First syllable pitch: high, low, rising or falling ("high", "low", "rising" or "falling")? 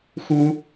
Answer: high